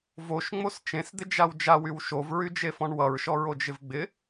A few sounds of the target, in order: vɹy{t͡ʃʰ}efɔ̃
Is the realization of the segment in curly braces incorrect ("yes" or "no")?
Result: yes